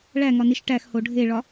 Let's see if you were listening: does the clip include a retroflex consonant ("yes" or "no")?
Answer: yes